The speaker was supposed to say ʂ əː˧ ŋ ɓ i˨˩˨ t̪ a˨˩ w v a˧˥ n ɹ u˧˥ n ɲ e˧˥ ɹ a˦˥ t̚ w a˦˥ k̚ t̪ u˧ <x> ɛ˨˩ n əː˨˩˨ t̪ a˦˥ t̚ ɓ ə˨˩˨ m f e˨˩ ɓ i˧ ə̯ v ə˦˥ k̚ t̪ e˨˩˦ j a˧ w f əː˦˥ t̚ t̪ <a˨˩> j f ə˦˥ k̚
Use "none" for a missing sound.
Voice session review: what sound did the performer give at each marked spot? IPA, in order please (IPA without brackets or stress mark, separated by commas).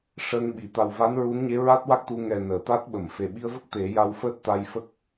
ŋ, a˧